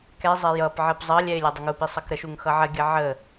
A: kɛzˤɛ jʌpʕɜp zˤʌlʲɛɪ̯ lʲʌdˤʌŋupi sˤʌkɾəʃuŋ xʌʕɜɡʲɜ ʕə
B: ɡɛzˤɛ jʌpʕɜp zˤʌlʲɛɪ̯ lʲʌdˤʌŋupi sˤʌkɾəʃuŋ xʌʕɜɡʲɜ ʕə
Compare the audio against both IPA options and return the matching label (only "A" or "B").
A